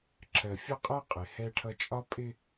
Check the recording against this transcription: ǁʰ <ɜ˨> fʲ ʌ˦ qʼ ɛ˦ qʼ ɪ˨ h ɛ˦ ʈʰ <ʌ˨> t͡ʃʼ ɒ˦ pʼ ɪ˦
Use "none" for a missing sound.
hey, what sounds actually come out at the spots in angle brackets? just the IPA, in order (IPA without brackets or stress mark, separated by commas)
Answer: ɜ˨, ʌ˦